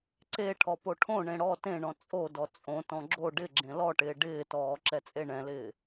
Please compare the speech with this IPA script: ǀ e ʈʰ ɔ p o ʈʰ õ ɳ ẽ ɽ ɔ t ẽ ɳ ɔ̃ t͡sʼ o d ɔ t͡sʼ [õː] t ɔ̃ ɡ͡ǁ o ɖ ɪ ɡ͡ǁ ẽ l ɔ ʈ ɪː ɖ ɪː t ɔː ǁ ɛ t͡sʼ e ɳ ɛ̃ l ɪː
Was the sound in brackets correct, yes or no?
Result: no